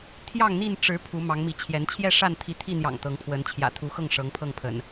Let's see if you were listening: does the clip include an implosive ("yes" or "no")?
no